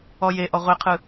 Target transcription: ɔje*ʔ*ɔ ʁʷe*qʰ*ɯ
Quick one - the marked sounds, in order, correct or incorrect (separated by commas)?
correct, correct